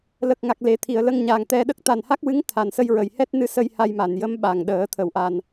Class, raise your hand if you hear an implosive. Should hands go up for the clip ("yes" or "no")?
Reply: yes